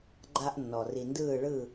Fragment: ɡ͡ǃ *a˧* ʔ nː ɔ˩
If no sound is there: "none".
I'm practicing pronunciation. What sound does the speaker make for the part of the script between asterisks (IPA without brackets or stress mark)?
a˧